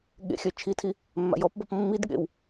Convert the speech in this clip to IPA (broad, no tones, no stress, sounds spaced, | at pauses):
ɠ ḛ xʲ œ t͡ʃʰ i tʰ i | mː a̰ j ɔ p b ɔ p mː i d ɠ ḛ w